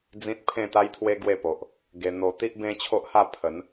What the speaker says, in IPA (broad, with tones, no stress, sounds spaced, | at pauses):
d͡z ĩ˦ t̚ pʰ ẽ˥˧ t̪ a˦ j t̪ʰ w e˦ ɡ w e˥˧ p o˨ ʔ | ɡ e˧ n̪ o˧ t̪ i˦ ʔ b ẽ˦ t͡ɕʰ o˦ ʔ h a˥˧ pʰ ə˨˦ n